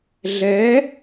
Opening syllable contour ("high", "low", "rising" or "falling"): rising